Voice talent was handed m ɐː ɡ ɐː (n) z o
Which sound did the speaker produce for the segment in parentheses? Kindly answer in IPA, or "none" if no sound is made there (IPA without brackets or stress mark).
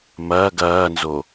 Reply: n